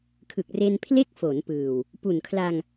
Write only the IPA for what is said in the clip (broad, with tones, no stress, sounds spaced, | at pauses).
kʰ ɯ˨˩ k̚ r e˧ n pʰ l e˥˩ k̚ f o˩˦ n p ɯː˨˩ w | p u˨˩ n kʰ l a˧ ŋ